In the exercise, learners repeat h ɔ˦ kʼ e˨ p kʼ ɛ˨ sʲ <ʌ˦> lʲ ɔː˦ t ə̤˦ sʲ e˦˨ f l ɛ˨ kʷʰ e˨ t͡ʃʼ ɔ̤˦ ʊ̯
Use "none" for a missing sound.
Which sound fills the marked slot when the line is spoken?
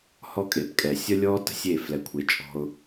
ʌ˦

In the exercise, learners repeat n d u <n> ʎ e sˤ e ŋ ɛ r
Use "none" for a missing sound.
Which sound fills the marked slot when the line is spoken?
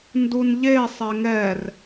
n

